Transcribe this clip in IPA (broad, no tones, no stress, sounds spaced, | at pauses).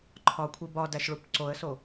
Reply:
ǃʰ ɒ kʷʰ i b ɒ d æ ʃ ɭ u p ǀ o ə̯ s o